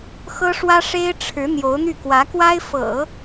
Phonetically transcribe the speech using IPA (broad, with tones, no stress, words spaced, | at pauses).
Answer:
xɤ˥ʂwä˥ʂe˥ɪ̯ ʈ͡ʂʰɻ̩˧˥ n̪jo˧˥ʊ̯n̪y˥˩kwä˧˥kwa˥ɪ̯ fɤ̰˨˩˦